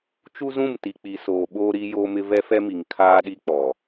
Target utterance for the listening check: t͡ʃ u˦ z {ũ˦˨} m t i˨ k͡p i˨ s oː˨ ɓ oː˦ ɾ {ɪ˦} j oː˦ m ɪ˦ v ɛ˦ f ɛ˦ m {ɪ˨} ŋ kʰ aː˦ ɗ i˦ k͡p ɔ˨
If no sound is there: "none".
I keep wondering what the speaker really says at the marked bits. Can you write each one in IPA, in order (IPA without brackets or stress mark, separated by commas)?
ũ˦˨, i˦, i˨